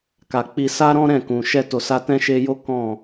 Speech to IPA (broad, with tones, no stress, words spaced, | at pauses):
ka˨k͡pi˧ sa˦ɾɔ̃˦ ɾɛ̃˦˨kũ˨ ʃɛ˧to˨ sa˧tɛ̃˦ʃe˧jo˦ kɔ̃˦˨